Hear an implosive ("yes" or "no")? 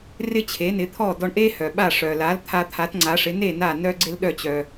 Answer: yes